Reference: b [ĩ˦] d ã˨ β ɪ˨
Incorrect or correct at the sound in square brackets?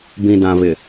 incorrect: ĩ˨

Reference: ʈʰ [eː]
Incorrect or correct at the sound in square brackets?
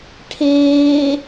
correct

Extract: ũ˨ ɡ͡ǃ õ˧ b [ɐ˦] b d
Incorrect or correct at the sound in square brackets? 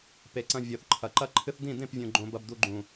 incorrect: ɐ˧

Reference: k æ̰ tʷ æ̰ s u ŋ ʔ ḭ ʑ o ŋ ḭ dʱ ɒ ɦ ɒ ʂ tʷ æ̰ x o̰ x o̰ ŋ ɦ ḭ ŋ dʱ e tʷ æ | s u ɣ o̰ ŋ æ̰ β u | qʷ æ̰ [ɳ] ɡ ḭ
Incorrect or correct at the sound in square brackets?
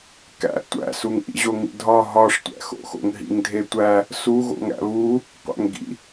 incorrect: ŋ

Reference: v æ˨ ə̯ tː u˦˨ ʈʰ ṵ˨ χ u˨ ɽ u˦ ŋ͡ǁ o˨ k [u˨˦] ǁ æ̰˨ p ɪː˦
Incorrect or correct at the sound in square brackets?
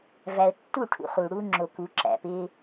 correct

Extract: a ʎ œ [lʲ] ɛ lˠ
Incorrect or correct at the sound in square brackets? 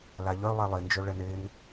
incorrect: lˠ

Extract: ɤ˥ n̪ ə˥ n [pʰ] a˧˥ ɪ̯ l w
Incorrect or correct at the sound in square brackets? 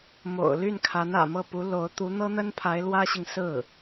correct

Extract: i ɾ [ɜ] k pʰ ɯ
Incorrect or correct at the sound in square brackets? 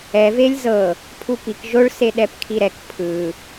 incorrect: ɛ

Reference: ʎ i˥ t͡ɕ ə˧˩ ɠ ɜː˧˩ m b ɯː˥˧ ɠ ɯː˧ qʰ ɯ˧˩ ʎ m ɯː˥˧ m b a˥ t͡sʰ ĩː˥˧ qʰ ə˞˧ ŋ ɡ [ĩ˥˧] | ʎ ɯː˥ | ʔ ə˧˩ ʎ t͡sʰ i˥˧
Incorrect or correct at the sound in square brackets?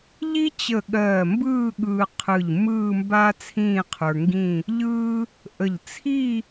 correct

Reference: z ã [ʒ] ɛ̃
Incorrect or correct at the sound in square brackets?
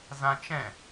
incorrect: t͡ʃ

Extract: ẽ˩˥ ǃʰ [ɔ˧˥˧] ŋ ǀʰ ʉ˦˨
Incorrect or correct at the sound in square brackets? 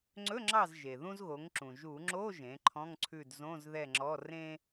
incorrect: ɔ̃˧˥˧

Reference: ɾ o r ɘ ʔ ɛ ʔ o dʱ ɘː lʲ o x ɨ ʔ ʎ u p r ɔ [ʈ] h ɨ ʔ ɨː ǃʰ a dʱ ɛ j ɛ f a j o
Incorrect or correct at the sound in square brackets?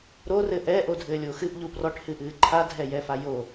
correct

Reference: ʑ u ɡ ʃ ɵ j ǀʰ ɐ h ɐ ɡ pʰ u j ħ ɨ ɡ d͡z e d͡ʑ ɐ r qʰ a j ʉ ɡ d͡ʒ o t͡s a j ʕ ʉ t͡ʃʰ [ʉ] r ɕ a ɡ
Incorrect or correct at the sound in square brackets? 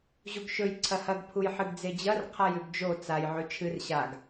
incorrect: ɨ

